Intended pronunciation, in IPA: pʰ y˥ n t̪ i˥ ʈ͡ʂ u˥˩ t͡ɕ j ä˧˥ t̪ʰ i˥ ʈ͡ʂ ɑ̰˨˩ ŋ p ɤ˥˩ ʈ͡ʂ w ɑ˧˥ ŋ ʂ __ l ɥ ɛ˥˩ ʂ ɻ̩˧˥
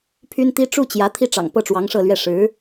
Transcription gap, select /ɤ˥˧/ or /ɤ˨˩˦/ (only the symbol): ɤ˥˧